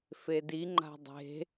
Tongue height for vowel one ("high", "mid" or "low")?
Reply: mid